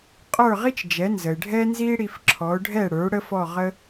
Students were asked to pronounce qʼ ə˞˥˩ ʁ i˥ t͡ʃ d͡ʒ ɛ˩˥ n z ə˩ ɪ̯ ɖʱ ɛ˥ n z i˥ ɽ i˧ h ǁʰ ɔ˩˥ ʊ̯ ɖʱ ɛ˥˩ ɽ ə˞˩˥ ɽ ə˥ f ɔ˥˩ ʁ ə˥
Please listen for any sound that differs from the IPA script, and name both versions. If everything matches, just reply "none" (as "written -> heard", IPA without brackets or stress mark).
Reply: h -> f